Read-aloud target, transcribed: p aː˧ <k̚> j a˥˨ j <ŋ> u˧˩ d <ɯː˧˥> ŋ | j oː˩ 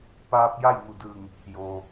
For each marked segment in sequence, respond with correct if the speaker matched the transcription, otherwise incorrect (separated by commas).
incorrect, correct, incorrect